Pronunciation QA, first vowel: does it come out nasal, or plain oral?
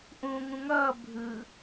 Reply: nasal